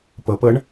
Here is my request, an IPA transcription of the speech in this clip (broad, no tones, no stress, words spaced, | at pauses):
pɤpɤɳ